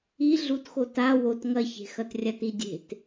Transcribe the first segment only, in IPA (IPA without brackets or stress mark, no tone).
i